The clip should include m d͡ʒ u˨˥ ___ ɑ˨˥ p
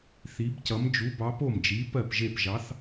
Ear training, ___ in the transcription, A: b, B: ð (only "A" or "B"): A